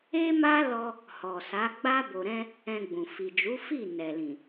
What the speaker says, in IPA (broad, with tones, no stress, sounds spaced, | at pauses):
e˦ m a˦ l ɔ˧ | h ɔ˨ s a˨˦ ɡ͡b a˦ b o˧ ɾ ɛ̃˦ | ɛ̃˧ ɡ͡b ũ˨ f i˨ d͡ʒ u˨˦ f i˦˨ n ɛ˨ l ĩ˨